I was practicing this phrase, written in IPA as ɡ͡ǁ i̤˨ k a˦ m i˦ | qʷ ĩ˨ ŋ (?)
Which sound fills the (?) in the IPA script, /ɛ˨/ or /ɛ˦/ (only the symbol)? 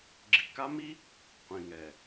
ɛ˨